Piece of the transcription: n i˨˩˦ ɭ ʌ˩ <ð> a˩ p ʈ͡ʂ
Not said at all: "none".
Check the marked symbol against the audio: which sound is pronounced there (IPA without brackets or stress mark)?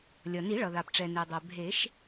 ð